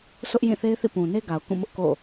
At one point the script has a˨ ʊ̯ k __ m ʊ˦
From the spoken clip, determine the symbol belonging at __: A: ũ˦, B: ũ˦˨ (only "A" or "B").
B